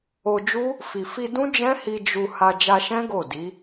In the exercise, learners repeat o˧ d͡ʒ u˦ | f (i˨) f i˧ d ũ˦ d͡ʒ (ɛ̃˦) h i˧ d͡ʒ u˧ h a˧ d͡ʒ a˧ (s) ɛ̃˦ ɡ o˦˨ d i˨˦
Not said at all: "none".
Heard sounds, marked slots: i˨, ɛ̃˦, ʃ

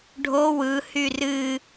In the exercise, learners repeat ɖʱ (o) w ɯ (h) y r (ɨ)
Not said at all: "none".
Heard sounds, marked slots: o, h, ɨ

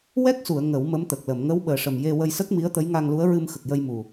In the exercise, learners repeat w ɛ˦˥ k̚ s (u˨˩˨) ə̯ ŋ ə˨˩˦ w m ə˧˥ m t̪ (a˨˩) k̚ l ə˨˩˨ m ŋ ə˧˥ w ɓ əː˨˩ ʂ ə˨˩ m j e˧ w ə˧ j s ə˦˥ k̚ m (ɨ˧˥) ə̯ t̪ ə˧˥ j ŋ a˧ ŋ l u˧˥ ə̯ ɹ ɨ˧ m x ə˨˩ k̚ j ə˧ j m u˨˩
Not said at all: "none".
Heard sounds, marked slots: u˨˩˨, ə˨˩, i˧˥

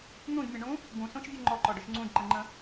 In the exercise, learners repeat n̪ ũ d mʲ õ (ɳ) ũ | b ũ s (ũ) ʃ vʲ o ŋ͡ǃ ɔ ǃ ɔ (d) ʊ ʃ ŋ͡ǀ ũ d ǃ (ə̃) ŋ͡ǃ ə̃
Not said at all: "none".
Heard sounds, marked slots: ɳ, õ, ɖ, ə̃

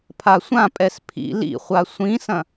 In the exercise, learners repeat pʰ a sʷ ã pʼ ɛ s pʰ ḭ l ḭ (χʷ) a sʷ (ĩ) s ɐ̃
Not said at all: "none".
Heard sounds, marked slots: χʷ, ĩ

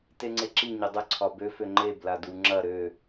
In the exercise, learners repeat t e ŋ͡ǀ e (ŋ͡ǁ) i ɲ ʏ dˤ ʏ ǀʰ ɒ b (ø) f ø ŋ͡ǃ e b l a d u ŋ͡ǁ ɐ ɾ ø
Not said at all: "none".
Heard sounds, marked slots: ǁ, ø

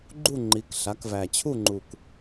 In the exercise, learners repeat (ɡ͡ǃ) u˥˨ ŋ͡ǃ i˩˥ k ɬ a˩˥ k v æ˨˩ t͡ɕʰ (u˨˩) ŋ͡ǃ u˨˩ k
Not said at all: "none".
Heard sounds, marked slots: ɡ͡ǃ, u˥˨

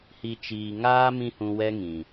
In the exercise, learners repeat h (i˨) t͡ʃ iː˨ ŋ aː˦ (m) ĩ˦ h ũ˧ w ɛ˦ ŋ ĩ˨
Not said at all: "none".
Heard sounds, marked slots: i˨, m

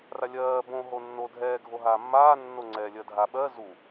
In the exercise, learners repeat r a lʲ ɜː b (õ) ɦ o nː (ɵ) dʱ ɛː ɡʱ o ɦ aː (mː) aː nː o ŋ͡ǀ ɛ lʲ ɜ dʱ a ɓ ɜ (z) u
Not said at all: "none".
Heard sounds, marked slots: õ, o, mː, z

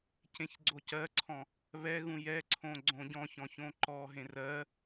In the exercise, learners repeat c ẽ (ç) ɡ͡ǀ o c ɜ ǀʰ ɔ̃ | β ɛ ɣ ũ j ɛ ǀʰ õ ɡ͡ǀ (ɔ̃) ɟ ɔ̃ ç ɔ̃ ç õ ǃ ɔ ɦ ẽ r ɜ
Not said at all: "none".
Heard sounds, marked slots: ç, õ

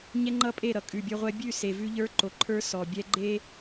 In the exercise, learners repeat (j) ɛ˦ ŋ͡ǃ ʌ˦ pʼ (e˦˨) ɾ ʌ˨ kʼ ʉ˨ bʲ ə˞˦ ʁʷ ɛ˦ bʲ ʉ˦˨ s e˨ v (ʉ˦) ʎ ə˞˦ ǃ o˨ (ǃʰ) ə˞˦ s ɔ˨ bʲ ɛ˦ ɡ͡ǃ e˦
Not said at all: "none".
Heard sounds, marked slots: ɲ, e˦˨, ʉ˦, ǃʰ

